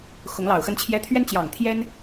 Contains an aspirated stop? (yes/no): yes